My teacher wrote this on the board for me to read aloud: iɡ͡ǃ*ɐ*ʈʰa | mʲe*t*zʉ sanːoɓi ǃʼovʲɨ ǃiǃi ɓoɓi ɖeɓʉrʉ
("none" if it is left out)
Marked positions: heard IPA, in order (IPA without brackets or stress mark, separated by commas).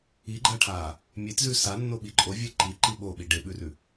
ɐ, t